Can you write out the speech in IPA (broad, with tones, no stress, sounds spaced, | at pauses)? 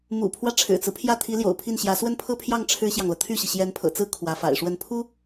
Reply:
m ṵ˨˩ pʰ w ä˦ ʈ͡ʂʰ ɻ̩˨˩ t͡s ɹ̩˦ pʰ j ä˥˩ t̪ʰ i˧˥ l j o̰˨˩ ʊ̯ pʰ i˥˩ n ɕ j ä˧˥ s w ə˥˧ n pʰ ɤ˥˧ pʰ j ɑ˥˩ ŋ ʈ͡ʂʰ ɻ̩˥ ɕ j ɑ˨ ŋ l ɤ˩ t̪ʰ y˥˩ ɕ i˩ ɕ j ɛ˧˥ n pʰ ɤ̰˨˩ t͡s ɹ̩˥˩ kʰ w ä˧˥ f a̰˨˩ ɪ̯ ʂ w ə˥˩ n pʰ u˥